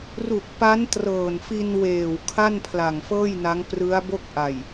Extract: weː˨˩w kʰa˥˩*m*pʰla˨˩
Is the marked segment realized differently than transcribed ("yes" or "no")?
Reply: yes